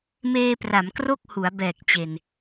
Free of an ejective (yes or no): yes